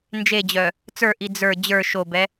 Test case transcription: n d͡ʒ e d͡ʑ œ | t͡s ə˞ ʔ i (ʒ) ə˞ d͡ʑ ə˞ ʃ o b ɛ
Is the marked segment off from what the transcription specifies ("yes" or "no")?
yes